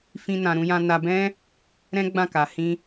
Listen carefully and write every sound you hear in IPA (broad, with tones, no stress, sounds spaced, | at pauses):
f ĩ˦ n ã˧ ɾ ũ˧ j ã˧ n a˧ b ɛ̃˦ | ɾ ɛ̃˦ ɡ͡b ã˦˨ k a˨ h ĩ˧